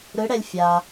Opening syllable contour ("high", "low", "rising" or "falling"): rising